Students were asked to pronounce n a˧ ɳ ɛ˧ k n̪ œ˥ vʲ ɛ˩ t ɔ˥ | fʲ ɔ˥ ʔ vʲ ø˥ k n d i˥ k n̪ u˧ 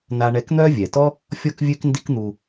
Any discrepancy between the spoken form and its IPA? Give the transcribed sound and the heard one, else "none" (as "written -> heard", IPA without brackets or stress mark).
ʔ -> k